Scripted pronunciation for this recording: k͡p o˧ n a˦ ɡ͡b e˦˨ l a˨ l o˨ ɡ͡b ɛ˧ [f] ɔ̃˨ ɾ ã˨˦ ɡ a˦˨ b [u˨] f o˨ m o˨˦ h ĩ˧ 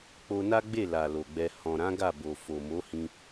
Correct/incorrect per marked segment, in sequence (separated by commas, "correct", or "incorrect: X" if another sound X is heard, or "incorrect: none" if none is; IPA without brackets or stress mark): incorrect: h, incorrect: o˨